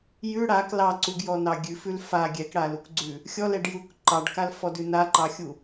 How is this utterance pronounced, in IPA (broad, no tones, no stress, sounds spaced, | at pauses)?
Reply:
j ʉ ɽ a k l ɑ ǀ u ɡ j ɔ n ɑ ɡʲ ʉ f ʉ l f a ɡʲ ɛ k ɽ a l u k ɡ͡ǀ ʉ | xʲ ɔ l ɛ ɖ j u k ǃ ɑ ɖ k a l f ɔ d ʉ n a ǃ ɑ xʲ u